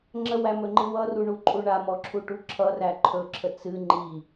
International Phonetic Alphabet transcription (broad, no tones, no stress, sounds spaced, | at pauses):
ŋ͡ǁ ə w æ m ɵ ŋ͡ǃ ɨ w ʌ r u ɳ u ǃʼ u ɳ a m ɔ ǁʰ u ʈ u ǁʰ ʌ r æ ǃʰ ɵ ǁʰ ə t͡s ɨ ŋ͡ǃ i